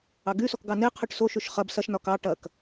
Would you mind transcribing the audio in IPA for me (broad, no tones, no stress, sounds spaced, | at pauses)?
ɑ ɡ y s ɔ k ɡ ɑ n e qʰ y ʈ s o ʃ y ʃ χ ɐ b s ɐ ʃ n ɒ k ɑ ʈ ɐ k